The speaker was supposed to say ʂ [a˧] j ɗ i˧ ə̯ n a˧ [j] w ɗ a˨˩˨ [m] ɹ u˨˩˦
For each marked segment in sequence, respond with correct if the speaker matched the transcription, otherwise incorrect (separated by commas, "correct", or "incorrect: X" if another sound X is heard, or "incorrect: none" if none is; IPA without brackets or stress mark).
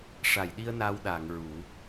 incorrect: a˨˩˨, incorrect: none, incorrect: ŋ